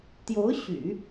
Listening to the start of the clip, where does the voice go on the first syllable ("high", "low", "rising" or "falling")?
rising